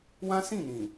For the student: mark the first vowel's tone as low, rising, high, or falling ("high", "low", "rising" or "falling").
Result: high